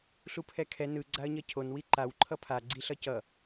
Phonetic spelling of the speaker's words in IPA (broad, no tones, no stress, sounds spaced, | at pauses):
ɬ u pʰ ɛ kʰ ɛ n ɯ ɡ͡ǀ a ə̯ ɲ ʌ cʰ o n w i ǃ a w ǃʰ ʌ pʰ a ɡ͡ǀ i ɬ ʌ c ʌ